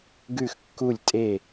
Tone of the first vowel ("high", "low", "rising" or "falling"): falling